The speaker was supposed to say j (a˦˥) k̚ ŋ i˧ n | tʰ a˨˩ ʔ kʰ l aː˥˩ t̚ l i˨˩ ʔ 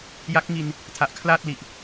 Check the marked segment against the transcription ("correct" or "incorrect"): correct